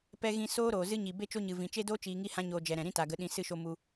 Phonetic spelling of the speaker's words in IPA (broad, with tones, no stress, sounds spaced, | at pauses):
p ɛ˨ ɣ ĩ˨ s oː˦ ɾ oː˨ z ɨ˦ ɲ i˨ b e˦ t͡ʃ o˦ ɲ ɨ˨ v ĩ˨ t͡ʃ e˦ d oː˦ t͡ʃ iː˧ ŋ i˦ h ã˦ ɲ oː˧ d͡ʒ ɛ˨ ɾ ɛ̃˨ ɾ ĩ˦ t a˨ ɡ ə˨˦ ɗ ĩ˧ s ɨ˦˨ ʃ o˧ m u˨